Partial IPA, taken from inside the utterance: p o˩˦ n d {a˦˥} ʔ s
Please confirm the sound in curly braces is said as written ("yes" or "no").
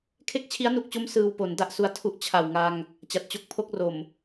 no